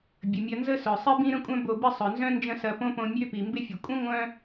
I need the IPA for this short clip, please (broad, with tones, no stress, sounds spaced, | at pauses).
bʲ ə˩ mʲ ɐ˧ n z ə˥ s œ˩ sˤ i˥ b ĩ˥ ɾ ə̃˥ kʷʼ œ̃˥ b o˧ b ɪ˥ sˤ œ˩ n z œ̃˥ n d͡ʒ ə̃˥ s ɐ˧ p õ˥ p õ˧ mʲ ø˥ p i˩ m b ɪ˥ fʲ ɐ˩ kʷʼ ə̃˥ ŋʷ œ̃˥